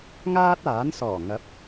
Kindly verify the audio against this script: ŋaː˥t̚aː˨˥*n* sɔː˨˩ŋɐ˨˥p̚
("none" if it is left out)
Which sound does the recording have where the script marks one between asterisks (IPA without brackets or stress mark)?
n